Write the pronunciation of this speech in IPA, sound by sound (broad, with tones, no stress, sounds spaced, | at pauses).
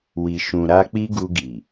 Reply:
w i˨ ʃ ũ˨ ɾ a˧ k͡p i˦ ɡ u˧ ɡ i˨